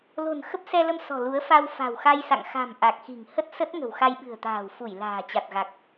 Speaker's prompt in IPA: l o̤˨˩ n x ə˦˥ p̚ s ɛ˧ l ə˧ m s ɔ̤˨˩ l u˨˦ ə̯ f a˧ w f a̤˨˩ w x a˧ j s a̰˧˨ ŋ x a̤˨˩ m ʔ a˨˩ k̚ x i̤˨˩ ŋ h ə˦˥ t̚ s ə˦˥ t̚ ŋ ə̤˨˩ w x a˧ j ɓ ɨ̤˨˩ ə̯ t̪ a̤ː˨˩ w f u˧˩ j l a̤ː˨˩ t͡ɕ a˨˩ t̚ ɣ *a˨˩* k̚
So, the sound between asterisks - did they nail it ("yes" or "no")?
yes